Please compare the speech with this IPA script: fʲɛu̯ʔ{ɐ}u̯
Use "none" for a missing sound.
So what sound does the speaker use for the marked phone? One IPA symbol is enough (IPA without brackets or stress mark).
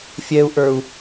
ə˞